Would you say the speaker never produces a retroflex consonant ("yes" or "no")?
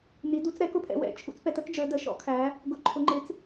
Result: yes